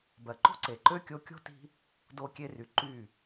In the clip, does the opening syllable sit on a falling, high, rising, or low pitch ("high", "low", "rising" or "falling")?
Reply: low